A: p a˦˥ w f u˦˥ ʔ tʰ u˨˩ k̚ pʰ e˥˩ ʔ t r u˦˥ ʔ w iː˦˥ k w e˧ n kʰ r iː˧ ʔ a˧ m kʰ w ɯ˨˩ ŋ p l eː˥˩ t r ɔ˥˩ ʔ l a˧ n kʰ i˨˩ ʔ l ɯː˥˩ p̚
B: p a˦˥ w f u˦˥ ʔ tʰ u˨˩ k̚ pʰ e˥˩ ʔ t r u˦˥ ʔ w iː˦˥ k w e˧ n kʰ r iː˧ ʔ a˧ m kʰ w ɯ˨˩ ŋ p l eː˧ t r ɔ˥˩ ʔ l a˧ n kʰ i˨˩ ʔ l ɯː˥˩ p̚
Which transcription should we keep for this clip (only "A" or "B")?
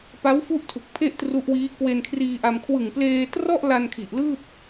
B